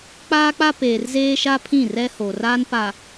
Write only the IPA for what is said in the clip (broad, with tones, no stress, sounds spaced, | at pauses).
k͡p aː˦ k͡p a˦ p eː˨ r z eː˦ ʃ a˦ pʰ ĩ˦˨ r ɛ˦ h o˨ r a˦ n p a˨